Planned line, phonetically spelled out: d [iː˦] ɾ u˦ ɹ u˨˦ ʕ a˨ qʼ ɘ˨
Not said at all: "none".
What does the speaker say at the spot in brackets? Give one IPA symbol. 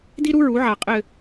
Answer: i˦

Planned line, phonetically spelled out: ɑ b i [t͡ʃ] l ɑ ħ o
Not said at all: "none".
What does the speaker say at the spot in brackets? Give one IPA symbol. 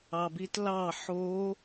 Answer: t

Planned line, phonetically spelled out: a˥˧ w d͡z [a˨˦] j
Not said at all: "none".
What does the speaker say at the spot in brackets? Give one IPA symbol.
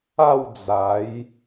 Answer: a˨˦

